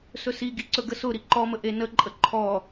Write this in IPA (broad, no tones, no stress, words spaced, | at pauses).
sɵsiɡi ǀɵɡəsʊɾi ǃɔməʔe nəǃʼə ǃʰɔ